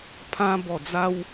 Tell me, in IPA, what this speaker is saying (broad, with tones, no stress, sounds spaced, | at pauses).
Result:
pʰ ã˧ b ɔ˨˩ d͡z a˧ w